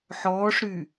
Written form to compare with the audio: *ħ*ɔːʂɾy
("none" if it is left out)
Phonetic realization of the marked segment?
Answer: ħ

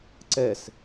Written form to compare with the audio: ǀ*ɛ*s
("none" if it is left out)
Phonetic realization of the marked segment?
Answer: ɛ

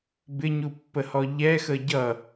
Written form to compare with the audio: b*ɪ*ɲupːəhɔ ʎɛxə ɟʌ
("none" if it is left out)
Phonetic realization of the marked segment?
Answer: ɪ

